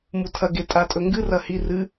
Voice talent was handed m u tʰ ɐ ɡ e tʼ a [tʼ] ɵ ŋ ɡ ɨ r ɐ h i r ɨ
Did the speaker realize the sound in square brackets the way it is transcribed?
yes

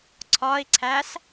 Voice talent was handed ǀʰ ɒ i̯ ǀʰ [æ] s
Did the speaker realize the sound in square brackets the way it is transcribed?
yes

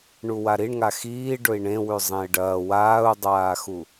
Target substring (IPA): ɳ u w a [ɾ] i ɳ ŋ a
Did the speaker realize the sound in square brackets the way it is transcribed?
yes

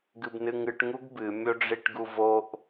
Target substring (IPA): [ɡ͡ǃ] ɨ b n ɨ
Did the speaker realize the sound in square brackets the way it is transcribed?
no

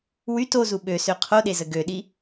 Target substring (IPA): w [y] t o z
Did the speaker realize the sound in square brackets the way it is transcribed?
yes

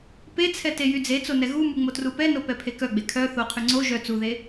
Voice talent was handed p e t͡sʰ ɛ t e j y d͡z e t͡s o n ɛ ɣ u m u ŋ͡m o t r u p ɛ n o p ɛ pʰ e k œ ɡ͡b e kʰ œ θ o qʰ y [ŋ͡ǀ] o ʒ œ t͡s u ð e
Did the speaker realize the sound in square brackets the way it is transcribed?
yes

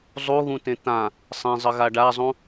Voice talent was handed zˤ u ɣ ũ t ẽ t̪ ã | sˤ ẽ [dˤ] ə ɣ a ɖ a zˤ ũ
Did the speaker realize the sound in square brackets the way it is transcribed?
no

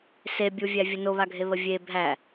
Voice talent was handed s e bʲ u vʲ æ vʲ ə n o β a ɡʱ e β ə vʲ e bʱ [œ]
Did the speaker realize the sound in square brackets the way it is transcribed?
no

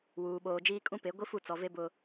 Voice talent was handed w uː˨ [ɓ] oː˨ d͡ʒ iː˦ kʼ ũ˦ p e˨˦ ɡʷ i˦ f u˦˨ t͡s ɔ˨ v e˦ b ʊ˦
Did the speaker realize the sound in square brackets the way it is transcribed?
yes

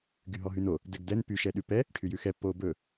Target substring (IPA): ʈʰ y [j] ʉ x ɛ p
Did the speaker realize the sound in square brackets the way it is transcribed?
yes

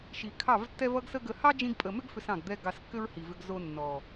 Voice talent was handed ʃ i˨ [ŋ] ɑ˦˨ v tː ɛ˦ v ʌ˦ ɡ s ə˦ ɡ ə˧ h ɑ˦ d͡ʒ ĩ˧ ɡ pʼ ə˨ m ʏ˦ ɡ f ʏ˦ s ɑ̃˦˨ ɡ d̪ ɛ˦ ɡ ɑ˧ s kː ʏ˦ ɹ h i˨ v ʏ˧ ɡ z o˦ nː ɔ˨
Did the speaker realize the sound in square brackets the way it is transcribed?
no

